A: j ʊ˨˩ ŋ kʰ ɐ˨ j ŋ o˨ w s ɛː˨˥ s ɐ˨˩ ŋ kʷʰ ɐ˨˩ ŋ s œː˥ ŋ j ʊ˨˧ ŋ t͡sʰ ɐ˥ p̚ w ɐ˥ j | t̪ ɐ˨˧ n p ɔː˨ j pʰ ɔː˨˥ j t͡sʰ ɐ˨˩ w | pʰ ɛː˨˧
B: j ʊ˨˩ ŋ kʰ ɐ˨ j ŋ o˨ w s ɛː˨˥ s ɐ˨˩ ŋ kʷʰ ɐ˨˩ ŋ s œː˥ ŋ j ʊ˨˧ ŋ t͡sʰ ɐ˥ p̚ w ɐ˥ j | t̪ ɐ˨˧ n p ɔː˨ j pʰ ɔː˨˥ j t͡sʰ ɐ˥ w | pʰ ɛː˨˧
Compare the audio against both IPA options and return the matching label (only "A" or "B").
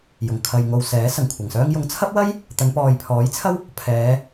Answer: B